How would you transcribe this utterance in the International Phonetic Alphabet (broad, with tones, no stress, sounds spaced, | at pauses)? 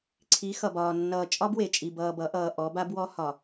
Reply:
ǀʰ i˨˦ x ʌ˨ b ɒː˨ nː ʌː˨ t͡ʃʼ ɒ˦ b w e˨ t͡ʃʼ i˨ b ʌː˨ b ʌ˨˦ ʔ ʌː˨ ʔ ɔ˨˦ b a˦ b w ɔ˦ h ɒ˨